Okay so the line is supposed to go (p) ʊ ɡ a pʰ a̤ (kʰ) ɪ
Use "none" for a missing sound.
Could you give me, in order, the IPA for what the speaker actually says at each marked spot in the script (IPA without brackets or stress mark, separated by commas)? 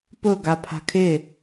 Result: p, kʰ